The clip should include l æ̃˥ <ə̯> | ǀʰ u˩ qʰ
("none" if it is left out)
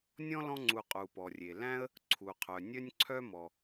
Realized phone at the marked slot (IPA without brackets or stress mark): ə̯